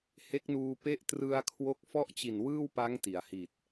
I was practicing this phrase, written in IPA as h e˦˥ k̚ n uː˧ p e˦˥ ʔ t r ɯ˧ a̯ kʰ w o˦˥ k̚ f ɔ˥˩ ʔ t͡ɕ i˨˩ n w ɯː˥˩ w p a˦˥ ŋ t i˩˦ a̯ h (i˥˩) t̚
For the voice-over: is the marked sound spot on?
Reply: no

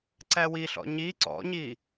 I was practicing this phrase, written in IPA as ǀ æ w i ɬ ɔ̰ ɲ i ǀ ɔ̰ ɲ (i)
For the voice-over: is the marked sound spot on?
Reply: yes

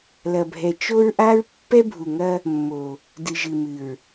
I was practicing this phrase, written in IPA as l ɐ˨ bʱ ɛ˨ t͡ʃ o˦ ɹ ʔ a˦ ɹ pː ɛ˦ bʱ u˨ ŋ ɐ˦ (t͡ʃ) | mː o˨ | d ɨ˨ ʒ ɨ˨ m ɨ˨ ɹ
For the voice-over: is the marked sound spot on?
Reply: no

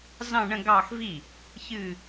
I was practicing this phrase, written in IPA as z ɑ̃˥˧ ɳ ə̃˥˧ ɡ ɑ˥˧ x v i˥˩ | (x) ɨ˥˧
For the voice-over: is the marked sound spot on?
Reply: no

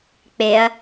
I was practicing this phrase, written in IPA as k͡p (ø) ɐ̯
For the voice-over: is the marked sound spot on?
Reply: no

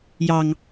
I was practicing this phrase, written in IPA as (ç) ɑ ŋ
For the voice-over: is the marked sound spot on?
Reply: no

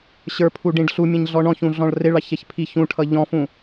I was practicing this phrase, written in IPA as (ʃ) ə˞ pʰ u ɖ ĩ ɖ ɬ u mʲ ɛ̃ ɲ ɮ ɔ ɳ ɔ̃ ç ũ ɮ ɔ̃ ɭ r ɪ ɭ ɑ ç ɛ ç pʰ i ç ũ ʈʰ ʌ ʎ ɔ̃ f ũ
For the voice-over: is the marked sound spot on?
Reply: no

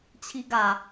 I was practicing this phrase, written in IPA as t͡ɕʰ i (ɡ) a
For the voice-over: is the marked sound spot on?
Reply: yes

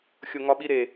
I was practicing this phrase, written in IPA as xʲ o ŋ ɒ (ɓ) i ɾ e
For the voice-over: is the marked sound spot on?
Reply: yes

